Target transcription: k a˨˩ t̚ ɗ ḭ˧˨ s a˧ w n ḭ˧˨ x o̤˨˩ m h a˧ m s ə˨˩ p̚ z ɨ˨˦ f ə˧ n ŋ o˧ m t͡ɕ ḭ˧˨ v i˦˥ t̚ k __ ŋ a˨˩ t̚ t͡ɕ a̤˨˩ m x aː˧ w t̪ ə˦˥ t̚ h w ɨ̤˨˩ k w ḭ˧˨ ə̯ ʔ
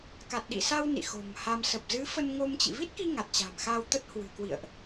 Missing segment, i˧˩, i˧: i˧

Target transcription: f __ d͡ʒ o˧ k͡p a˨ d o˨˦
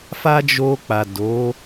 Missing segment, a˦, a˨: a˦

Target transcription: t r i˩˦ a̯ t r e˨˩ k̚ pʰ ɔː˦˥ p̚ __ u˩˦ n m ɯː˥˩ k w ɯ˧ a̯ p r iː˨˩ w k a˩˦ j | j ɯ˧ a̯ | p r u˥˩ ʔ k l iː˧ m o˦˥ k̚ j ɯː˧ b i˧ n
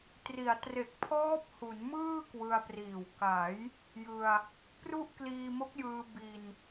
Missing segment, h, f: h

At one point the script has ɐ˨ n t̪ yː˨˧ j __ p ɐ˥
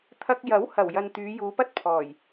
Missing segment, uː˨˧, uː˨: uː˨˧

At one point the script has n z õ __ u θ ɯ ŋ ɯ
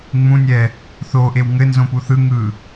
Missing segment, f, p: p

